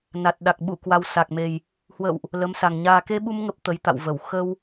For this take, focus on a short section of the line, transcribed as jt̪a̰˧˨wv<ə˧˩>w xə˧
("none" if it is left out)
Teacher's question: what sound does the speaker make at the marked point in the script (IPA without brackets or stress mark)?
ə˧˩